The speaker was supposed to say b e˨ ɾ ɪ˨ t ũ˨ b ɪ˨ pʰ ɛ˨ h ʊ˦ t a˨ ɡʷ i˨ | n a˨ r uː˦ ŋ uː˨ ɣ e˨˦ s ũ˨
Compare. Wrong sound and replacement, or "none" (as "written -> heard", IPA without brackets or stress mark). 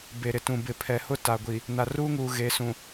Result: none